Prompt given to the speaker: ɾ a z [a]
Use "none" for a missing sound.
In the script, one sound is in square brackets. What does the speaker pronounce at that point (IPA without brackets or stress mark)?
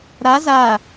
a